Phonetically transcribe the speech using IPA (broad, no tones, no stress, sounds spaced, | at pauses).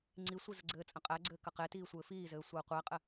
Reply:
ŋ͡ǀ i sʷ i z ə ɡ͡ǀ ɘː t͡sʼ ə̃ qʼ æ ɡ͡ǀ ɘː k ɐ q e t iː sʷ ɘː f iː z ɘː sʷ əː qʷ æ qʼ ɘ